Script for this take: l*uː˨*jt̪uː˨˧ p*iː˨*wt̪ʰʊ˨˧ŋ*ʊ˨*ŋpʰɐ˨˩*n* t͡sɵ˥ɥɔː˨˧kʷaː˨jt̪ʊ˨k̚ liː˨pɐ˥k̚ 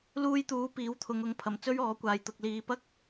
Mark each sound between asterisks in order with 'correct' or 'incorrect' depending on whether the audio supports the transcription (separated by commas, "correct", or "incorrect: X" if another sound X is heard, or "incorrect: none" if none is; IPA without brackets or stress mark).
incorrect: uː˧, incorrect: iː˨˥, incorrect: ʊ˨˥, incorrect: m